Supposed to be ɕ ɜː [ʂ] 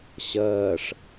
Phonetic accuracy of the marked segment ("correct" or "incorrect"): correct